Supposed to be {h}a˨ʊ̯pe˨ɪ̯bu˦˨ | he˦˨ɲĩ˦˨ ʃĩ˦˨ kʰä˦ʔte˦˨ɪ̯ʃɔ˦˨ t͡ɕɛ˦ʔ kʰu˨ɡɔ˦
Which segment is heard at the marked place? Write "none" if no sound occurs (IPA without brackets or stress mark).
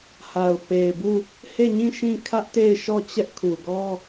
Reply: h